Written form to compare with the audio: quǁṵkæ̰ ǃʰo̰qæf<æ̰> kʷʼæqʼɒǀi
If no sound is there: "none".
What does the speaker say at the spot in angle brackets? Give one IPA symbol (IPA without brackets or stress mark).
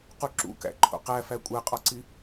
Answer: æ